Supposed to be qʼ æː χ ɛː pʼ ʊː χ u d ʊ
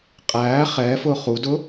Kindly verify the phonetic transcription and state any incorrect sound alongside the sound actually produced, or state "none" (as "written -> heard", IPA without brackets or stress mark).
pʼ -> f